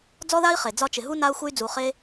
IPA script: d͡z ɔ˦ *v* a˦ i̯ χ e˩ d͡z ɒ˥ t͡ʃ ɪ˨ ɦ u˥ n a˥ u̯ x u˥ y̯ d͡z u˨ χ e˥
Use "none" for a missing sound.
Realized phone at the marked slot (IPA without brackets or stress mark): ð